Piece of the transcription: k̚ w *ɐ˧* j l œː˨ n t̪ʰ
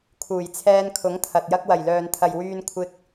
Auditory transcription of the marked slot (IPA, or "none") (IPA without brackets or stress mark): ɐ˨˩